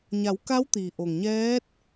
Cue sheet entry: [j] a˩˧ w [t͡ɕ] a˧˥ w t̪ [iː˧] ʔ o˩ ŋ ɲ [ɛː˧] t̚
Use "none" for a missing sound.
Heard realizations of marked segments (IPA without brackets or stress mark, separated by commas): ɲ, k, iː˩, ɛː˧˥